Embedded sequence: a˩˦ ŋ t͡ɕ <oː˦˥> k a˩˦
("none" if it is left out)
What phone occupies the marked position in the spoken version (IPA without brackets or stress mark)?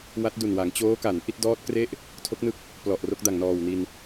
oː˦˥